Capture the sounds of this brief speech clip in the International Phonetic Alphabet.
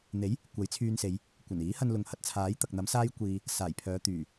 n̪e˨˥j | kʷɐ˨˥jt͡sʰyː˧nse˨˧j | kʷɐ˨˩niː˨˥hɐ˧n lʊ˨˧ŋhɐ˧t̚t͡sʰaː˨˥j t̪ɐ˨k̚n̪ɐ˨˥m saː˥j kʷiː˧ | saː˨˩jpʰœː˨˧t̪yː˨˩

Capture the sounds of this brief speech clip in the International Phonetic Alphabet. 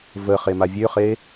və χemavʲøχe

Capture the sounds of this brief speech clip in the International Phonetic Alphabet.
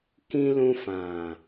kĩ˧ lũ˧fã˨

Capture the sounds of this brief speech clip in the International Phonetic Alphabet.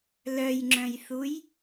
lœjŋ͡ǁœ̃jθuj

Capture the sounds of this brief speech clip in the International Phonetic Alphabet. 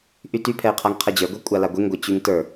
ʔytypʰɛɪ̯qʰaŋ qʰɛd͡ʑə˞ɡʷɛ kʷʼalaɡʷeŋɡʷɛ t͡ɕyŋtə˞

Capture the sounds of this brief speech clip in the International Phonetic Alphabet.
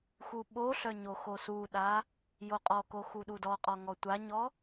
xuɓoɬœ ɲoxosuɗa | joqʼɔko xuɗudɔqʼɔ ŋɔtʷaɲɔ

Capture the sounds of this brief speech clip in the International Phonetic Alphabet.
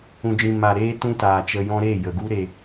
ũ˨d͡ʒĩ˨ ma˨ ɾeː˦ tũ˦taː˨t͡ʃə˧jɔ̃˦ ɾe˦˨ jə˨ɡu˦ ɾe˧

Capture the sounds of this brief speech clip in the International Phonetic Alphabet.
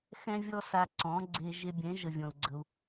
xɛ̃˦vʲɔ˦sa˧ǀɔ̃˨˦ ɡ͡ǀe˧ ʒe˧bʲɛ̃˨˦ ʒə˧vʲɔ̃˨u̯ɡ͡ǀə˧u̯

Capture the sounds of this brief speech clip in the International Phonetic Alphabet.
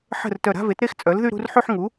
ħə̤˥˩r tœ˧˩ɾa̤˥˧ve˩˥tɾe˥˧x t͡sʼœ˩˥lðy˥˧ɾṳ˥˧rħy˥˧ħ ŋu˩˥

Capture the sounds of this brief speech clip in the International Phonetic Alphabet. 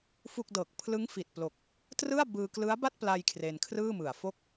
fu˥˩k̚ dɤː˨˩k̚pʰlɯ˦˥ŋfi˨˩t̚plo˨˩k̚ | trɯ˥˩a̯ bɯː˧klɯ˦˥a̯ ba˥˩t̚pla˧j kʰre˧nkʰrɯː˥˩mɯ˨˩a̯fo˥˩k̚

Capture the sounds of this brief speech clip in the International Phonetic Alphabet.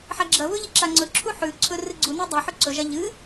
ħaɡ͡ǁɐβɵ ʎiǁaŋ͡ǀɵǁʰu ħʉǀʰɵ rɨɡ͡ǀuni dˤeħɵ ǀɵʒa ʎɨ

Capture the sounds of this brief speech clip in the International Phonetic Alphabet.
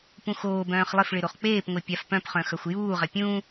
pũxoːbœ̃ːχ lˠɪfɭɪ ɾoχk͡peːpŋʷe pʲafpœ̃pχœ̃ xœxʷjuːʁɐ pʲũ

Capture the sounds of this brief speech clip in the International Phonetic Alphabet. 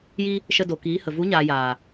ji˧ | ʃə˧do˨kiː˨˦hə˨ vu˨˦ɲaː˨jaː˨

